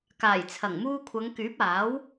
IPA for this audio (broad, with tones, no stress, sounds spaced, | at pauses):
k aː˨˩ j t͡sʰ ɐ˨˩ ŋ m uː˧ kʷʰ ɐ˨˧ ŋ k yː˨˥ p̚ aː˨˥ w